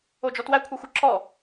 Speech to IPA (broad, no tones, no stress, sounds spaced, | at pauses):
o d͡ʒ ɔ t w æ kʷʰ a xʷ ə ǁ ɔ